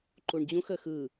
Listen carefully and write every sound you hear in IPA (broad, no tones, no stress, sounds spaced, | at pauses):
ǃ u ɳ d͡ʑ ũ x əː x ɯ